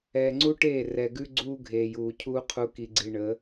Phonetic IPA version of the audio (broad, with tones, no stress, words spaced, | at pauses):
ɛː˨ŋ͡ǀu˦ʈeː˦˨ rɛ˨ɡʉ˦ ɡ͡ǀuː˦ɡʱeː˨juː˨cʰuː˦ qʰu˨ki˨ɡ͡ǀi˨ ɳəː˨˦